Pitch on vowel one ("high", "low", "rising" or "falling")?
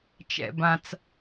low